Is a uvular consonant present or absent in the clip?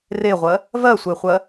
present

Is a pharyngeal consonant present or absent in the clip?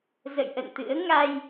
absent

